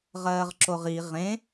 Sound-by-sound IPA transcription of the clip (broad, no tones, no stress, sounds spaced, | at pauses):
ʁ ɜː ʁ ǁ o ʁ i ʁ ẽ